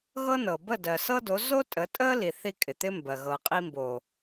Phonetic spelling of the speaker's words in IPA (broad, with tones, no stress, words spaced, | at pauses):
ɣɤ˦nɤ˨ bə˦˨ dɜ˨sɤ˦do˨˦ zo˦ tʼə˨˦tʼə˦li˨θi˧ kʼɪ˨t̪ɪ˦mbɜ˨ ɣɤ˨qʼi˧mbo˨